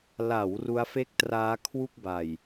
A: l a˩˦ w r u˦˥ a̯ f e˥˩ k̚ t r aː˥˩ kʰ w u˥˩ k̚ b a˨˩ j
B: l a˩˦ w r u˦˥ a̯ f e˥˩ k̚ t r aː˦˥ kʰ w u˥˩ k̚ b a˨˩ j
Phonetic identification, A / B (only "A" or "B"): B